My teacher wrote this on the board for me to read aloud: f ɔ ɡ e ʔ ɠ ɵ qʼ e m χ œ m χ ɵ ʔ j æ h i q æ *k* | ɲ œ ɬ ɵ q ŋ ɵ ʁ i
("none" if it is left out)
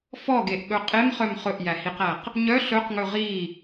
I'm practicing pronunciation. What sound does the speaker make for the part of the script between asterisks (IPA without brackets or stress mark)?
q